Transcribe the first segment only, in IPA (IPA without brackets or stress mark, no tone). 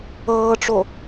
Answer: ɤː